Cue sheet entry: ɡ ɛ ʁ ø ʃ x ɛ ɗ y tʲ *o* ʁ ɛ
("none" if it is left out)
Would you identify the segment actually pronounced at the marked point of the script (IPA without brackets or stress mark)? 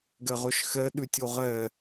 o